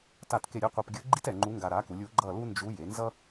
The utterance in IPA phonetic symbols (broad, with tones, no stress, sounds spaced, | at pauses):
t a˥˨ t k e˥˨ ɾʲ ɛ˥ qʷ ɯ˧ p ɡʲ ɯ˧˥ ɡ͡ǃ i˥ t ɛ˩˧ ŋ͡ǃ u˧˥ ŋ ɡ a˧ ɾ a˩˥ k u˩˧ lʲ u˩˥ ɡ͡ǃ ʌ˥˨ l u˥ n d͡ʒ u˧˥ j e˩˥ n z ʌ˥